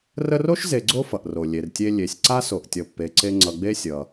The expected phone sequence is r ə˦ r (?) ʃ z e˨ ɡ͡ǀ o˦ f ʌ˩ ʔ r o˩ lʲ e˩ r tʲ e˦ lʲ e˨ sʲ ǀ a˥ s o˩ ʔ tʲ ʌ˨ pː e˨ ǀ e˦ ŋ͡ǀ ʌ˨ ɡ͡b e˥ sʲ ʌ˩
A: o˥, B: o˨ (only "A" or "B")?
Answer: A